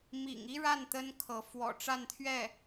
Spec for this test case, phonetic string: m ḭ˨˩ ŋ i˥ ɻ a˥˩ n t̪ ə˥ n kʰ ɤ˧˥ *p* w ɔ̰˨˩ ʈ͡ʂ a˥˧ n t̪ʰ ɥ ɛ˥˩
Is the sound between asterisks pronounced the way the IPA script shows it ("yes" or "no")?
no